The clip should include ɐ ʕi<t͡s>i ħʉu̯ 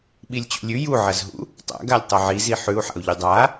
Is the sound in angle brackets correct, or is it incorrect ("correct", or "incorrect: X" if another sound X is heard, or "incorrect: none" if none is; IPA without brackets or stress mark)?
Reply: incorrect: z